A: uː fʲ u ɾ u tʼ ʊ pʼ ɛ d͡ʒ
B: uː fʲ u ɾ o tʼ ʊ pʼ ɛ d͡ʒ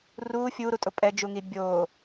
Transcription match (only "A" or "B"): A